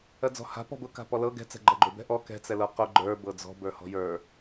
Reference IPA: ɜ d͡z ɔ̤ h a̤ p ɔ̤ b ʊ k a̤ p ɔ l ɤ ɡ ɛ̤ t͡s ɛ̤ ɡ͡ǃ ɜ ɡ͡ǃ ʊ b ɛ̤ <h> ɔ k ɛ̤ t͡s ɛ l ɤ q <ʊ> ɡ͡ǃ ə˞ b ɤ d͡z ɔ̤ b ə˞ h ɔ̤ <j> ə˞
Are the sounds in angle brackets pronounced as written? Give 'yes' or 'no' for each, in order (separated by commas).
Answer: no, yes, yes